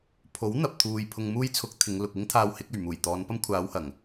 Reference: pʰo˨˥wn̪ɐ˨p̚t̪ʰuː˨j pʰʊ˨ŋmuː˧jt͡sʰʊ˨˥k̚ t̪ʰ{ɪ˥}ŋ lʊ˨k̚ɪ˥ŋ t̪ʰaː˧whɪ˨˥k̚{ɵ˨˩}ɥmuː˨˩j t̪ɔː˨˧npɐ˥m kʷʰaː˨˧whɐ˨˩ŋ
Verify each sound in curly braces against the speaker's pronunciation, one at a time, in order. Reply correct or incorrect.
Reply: incorrect, correct

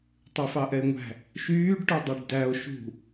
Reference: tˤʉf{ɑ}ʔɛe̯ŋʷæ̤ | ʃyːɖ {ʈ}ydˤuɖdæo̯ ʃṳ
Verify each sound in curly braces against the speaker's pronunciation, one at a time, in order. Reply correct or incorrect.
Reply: correct, correct

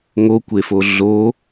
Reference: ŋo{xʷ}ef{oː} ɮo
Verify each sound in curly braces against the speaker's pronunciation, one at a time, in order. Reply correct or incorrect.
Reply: incorrect, incorrect

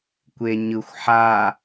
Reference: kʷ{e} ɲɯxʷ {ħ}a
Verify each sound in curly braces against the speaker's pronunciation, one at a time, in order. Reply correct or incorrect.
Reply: correct, correct

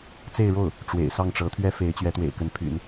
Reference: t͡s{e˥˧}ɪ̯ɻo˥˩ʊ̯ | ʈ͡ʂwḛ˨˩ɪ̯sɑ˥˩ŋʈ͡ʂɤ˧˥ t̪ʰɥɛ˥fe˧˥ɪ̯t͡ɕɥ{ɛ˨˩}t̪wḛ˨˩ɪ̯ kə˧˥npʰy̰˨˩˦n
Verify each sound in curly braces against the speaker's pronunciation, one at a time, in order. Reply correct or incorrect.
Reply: correct, incorrect

